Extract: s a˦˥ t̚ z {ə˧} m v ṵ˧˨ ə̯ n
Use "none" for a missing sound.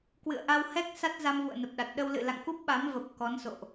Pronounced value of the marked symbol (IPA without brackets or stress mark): a˧